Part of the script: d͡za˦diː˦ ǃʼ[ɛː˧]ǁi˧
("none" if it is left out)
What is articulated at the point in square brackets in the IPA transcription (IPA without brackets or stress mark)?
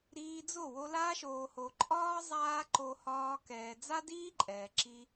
ɛː˨